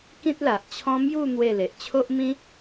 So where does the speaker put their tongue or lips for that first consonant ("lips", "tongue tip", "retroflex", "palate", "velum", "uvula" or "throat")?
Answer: velum